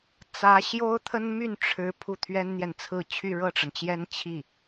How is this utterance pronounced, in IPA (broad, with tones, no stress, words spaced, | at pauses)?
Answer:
t͡sä˧˥ ɕjo˥ʊ̯t̪ʰə˥n my˥˩nʈ͡ʂʰɻ̩˧˥ pʰu˥˩t̪ʰɥɛ˥nn̪jɛ˨nt͡sʰɹ̩˥˧ t͡ɕʰy˥˧ɻɤ˥˩ʈ͡ʂə˩nt͡ɕjɛ˥n t͡ɕʰi˥˩